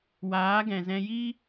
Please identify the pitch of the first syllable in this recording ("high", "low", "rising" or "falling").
rising